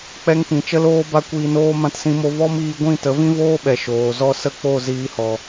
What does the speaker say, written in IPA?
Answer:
k͡pɛ˧ŋpĩ˨t͡ʃə˦loː˦ ba˦kʷiː˧noː˦ mã˧tsĩ˧mo˧ vɔ˦miː˧ɡʷĩ˦˨ tə˨˦vĩ˦voː˦ɓɛ˨ ʃoː˨zɔ˦ sə˦k͡po˦˨ ziː˧hɔ˨

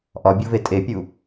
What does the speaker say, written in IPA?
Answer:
ʔɒbʲove tʼepʲu

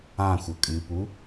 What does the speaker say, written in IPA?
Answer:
ãxʷə kʼɨpu

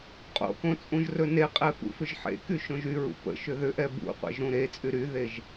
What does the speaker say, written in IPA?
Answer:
qʼo̰kõ t͡sʼũʒrɵneqʼɛ fṵfʏʒħḛky ʃõʒyɹṵ pə̰ ʃʏðʏʔɛ bṵqʷɛ̰ʒ ɾũɾet͡sʼy ɾyðeʒ

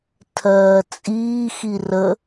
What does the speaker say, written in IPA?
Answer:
tʰɜːt͡sʼiːxi rə

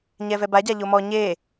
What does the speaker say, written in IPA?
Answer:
ɲɛvɛbaɟa ʎomɔ ɲe

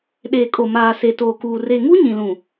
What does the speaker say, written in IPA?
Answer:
ɗeː˨kʼo˨maː˨ se˨toː˨kuː˨ re˨ŋu˦ ɲĩ˨lũ˨

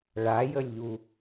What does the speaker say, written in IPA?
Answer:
ɭajəlʲʎu

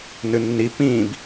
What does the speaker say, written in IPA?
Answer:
nɨnːi pĩːb

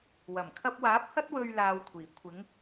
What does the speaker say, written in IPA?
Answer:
wɐ˨˩mkʰɐ˧p̚waː˨˥p̚hɐ˥t̚ wɵ˥ɥlaː˧wkʷʰiː˨˩ kʷʰɪ˨˥ŋ

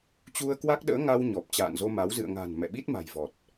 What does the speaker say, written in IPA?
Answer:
t͡ɕu˧ə̯ kwa˦˥k̚ɗə̰ː˧˥ ŋa˧w ɲɔ˨˩p̚t͡ɕa̰ː˧˨nzo˧ma˨˦w zɨ̰˧˨ə̯ŋa̤˨˩n mɛ̰˧˨ɓi˦˥t̚ma̤˨˩j vɔ˨˩t̚

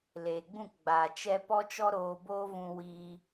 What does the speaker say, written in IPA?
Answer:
leː˨ɡ͡bũ˦˨kɡ͡baː˨ t͡ʃɛ˧ pɔ˦t͡ʃɔ˦ ɾoː˧boː˦vũ˧ wiː˧

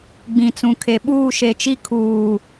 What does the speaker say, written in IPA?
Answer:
ɡ͡bĩ˨t͡sũ˨kʰe˨ ɓuː˦˨ʃe˨t͡ʃi˦ kʰuː˨

